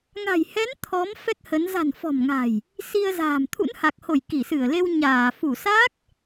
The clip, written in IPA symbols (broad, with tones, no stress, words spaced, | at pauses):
ŋa̤˨˩jhɛ˨˦n t̪ʰɔ˨˦m fɛ˦˥k̚hə˨˦n za̤˨˩nfɔ̤˨˩mŋa̤˨˩j | si˧ə̯za̤ː˨˩m t̪ʰṵ˧˥nha˨˩k̚ho˧˩j ki˧˩sɨ˧˩ə̯le˧w ɲaː˧˩ fu˧˩sa˦˥k̚